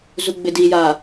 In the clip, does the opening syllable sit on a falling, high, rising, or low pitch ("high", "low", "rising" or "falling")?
low